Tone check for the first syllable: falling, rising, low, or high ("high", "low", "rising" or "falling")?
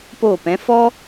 falling